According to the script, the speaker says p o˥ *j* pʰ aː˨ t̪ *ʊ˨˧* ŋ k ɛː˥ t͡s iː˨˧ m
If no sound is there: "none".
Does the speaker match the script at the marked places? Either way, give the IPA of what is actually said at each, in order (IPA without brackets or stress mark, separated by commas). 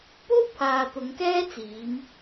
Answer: w, ʊ˨˧